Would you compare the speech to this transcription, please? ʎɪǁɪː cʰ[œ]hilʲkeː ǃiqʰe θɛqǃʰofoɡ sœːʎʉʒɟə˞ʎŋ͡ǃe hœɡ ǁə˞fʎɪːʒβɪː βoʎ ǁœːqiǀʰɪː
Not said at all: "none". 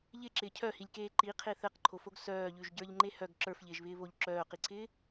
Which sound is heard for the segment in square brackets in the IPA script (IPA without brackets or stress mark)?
œ